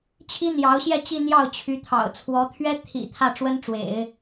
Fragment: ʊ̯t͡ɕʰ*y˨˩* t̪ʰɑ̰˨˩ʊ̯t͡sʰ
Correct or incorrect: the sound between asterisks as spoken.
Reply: incorrect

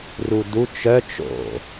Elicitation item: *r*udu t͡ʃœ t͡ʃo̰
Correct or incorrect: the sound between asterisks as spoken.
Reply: correct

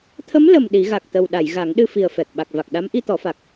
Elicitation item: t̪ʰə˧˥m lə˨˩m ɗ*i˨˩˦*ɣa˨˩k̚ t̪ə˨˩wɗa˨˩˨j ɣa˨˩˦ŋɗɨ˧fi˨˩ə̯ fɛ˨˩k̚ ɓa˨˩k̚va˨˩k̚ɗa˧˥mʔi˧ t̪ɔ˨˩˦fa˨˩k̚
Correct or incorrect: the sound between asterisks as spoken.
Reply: correct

